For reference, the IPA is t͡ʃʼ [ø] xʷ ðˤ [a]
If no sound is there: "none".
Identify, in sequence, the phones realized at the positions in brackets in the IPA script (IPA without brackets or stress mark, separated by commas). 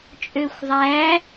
ø, æ